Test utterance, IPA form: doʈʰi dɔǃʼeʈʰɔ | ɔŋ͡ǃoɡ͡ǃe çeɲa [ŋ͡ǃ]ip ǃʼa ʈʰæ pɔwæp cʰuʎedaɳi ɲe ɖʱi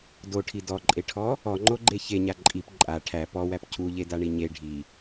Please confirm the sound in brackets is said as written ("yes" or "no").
no